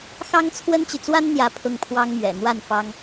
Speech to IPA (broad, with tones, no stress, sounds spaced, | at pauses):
x ɑ˥ ŋ t͡sʰ w ə˥ n t͡ɕ y˨ t͡s w a˥ n n̪ j ä˥˧ pʰ ʊ˥˩ ŋ pʰ w ɑ˥ ŋ m ɥ ɛ̰˨˩ n̪ w a˥˩ n f ɑ˥ ŋ